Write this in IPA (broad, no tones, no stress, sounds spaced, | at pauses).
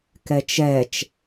k ɛ t͡ʃ ɛ t͡ʃ